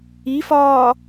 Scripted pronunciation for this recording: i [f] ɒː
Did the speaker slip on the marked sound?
no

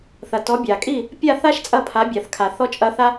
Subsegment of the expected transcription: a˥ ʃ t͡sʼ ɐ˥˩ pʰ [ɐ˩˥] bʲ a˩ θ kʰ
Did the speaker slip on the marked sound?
yes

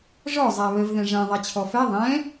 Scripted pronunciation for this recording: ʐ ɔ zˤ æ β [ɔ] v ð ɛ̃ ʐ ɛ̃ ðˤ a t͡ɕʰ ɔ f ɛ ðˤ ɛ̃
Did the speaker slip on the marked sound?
yes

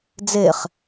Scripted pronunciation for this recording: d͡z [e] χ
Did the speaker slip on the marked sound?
no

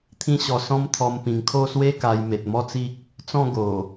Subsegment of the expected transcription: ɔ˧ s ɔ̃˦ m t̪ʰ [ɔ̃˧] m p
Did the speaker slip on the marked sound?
yes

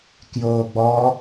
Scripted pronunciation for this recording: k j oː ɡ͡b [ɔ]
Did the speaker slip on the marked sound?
no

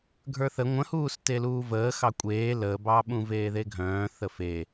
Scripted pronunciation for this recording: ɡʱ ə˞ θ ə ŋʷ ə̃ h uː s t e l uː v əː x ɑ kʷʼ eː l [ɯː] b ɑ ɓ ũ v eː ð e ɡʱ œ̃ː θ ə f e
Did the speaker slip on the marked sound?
yes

